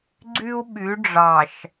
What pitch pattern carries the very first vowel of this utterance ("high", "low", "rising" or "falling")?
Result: high